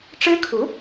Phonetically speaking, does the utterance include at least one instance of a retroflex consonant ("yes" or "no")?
yes